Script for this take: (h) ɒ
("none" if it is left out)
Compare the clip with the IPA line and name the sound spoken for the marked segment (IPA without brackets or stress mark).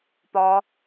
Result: p